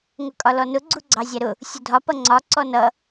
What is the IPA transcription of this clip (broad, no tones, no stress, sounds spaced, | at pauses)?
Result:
ŋ ʊ kʼ ɒ l ɔ n ʊ ɡ͡ǀ u ɡ͡ǀ ɑ zʲ æ ɾ ʊ | sʲ ʊ dʱ ɒ p ʌ ŋ͡ǀ ɒ ǀ ɔ n ʌ